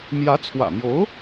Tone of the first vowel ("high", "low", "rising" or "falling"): rising